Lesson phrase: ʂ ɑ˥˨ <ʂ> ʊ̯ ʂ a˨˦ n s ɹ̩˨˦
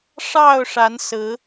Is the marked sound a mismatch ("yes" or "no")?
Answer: yes